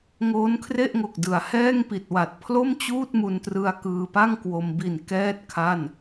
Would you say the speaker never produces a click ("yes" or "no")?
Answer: yes